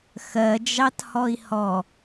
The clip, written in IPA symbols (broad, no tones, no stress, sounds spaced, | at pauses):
x ɜ d͡ʒ ɑ t h ɔ i̯ h ɔ